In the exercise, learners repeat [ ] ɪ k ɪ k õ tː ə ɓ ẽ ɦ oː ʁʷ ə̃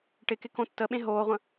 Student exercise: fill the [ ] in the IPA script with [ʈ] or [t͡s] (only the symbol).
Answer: ʈ